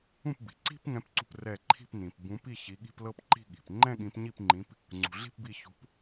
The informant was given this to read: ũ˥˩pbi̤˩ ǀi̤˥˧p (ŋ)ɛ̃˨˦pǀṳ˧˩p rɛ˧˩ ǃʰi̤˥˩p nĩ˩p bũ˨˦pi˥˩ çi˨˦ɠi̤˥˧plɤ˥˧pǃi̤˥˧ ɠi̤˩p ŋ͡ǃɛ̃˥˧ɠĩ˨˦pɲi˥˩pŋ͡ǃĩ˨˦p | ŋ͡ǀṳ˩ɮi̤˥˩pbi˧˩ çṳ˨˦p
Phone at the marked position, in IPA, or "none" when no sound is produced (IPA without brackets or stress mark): ŋ